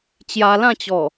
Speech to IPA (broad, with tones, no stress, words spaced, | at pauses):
t͡ɕja˧lã˥˧t͡ɕɔ˨˩